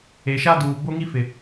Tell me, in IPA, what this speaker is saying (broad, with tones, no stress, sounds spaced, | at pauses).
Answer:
e˨ ʃ a˦ d uː˨ b o˦ ŋ i˦ f ɪ˨